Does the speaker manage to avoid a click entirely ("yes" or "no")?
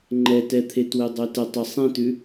no